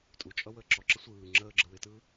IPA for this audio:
tʼ u t͡ʃʼ ʌ w əː ǁ ɔ ǁ ə sʷ ɯː ŋ͡ǁ əː ɡ͡ǁ ə w ɪ t ɯː

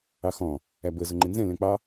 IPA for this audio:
ɑ x ɔ̃ | æ b ə z ʊ ŋ͡ǃ ɪ n z ɛ̃ l ɛ̃ k͡p ɑ

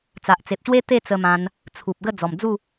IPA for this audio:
t͡s a˨ ʔ t͡s e˨ p̚ ɕ w e˦ t̪ e˥˧ t͡s ə˧ m ã˧ n | t͡sʰ u˨ p̚ ɡ ə˥˧ d͡z ɔ˨˩ m d͡z u˥˧

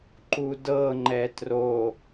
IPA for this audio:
ǃ u d ɤ ŋ͡ǃ ɛ t r o

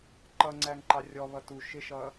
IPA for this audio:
ǃ ʌ ŋ͡ǀ æ ŋ ǃ ɑ rʲ ɔ β ʌ t u ʃ ɪ ʃ ʌ

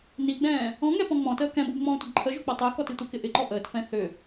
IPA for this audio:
n i ɡ͡b ɛ̃ː | ɔ̃ ŋ ɛ p ɔ̃ ŋ͡m ɔ̃ t əː k ɛ̃ b o b ŋ͡m ɔ̃ː tʷ ə d ǃʰ ə ʒ o k͡p ɔ tˤ əː k ɔ t i tʷ ə k ɪ ʔ ɪ ǃ ɔ ʔ əː t f ɛ̃ θ ʏ

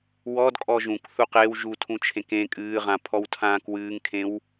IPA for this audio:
w ɔ d kʼ ɔ ʒ ũ k θ u q e w ʒ u tʰ ũ t͡ʃʰ ẽ k ẽ kʼ ɨː ʁ ã pʰ ɔ w tʰ ãː k w ɨː ŋ kʰ ẽ w

